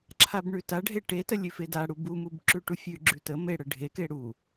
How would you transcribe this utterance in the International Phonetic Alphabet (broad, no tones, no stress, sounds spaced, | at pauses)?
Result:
ǁʰ a b ɳ ʉ t a ɖʱ e ʈ e t ə lʲ ʉ f e d a ɽ u b u m u b ǁ ʉ ʈ u fʲ ʉ ɡ͡ǁ ʉ t ə m e ɽ ə ɖʱ e k e ɽ u